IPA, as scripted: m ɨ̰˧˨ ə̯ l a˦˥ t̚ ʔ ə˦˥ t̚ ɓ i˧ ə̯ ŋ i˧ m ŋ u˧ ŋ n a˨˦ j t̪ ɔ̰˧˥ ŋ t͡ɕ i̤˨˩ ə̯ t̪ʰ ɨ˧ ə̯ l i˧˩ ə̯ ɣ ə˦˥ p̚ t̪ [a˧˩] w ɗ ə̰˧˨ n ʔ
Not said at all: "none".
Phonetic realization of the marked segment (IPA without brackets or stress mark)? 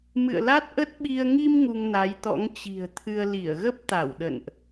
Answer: a˧˩